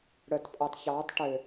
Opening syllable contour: low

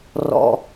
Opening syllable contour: low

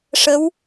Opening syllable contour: rising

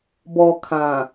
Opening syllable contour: low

